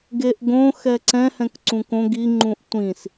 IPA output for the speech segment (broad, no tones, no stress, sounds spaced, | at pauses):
ɡ e ʔ ɡ õ x ɛ ǀ ɛ̃ h ɛ̃ k ǀ ũ k õ ɡ i ŋ͡ǃ ũ ʔ tʷ ĩ s